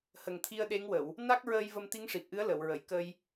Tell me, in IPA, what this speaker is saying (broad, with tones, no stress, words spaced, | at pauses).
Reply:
hə˨˩ŋt̪ʰi˧ə̯ ɗe˧˥ŋwə˨˩˨w | na˦˥k̚ɹəː˧j və˧mt̪i˧˥ŋʂi˨˩p̚ʔɨ˧˥ə̯ lə˨˩˨wɹə˨˩˨j kə˧j